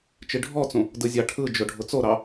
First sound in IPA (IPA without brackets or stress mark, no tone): t͡ʃ